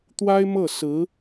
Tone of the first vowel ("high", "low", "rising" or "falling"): high